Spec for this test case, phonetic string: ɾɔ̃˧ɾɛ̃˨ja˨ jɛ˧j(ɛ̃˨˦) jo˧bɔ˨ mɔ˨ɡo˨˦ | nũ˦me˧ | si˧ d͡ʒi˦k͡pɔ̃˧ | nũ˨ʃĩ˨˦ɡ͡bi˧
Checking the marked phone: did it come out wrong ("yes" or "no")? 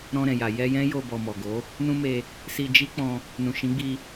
yes